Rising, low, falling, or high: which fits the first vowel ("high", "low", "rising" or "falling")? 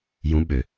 rising